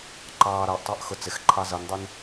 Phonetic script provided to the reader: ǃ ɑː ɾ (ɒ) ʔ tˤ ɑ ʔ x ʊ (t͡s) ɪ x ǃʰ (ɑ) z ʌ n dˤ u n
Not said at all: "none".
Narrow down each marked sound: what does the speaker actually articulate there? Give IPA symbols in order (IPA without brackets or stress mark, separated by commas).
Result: ɑ, t͡s, ɑ